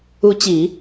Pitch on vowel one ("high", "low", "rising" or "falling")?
rising